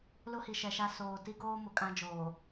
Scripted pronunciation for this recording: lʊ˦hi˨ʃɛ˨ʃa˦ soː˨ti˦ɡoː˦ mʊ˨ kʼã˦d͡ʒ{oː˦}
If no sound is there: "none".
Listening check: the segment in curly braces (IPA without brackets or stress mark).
oː˨